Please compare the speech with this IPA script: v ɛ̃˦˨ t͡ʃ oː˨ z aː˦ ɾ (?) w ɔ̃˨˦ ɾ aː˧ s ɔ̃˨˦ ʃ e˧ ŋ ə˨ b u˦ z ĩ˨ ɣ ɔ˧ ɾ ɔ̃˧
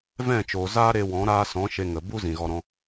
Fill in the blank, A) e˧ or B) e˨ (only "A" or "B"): A